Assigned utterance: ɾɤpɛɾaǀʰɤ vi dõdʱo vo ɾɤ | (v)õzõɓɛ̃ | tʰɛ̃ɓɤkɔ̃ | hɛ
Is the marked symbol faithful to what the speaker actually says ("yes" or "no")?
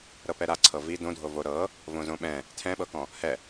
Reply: yes